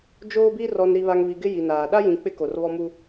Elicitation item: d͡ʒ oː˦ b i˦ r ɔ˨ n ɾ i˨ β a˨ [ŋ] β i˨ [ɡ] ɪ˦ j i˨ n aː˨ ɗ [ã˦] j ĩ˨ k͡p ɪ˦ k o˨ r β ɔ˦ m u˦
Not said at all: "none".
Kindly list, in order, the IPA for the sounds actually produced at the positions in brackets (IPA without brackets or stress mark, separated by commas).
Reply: ŋ, ɡ, a˦